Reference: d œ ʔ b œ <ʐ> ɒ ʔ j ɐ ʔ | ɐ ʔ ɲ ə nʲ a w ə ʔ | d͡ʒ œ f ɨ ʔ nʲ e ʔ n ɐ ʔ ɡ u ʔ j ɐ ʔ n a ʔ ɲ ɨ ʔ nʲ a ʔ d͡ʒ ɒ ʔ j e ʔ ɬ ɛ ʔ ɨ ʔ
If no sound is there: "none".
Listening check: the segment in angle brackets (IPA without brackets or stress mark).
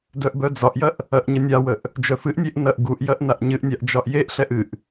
d͡z